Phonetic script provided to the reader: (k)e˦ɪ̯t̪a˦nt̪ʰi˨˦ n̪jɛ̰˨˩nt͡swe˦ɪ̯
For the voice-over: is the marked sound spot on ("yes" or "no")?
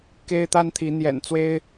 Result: yes